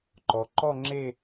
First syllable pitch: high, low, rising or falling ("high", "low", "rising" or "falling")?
low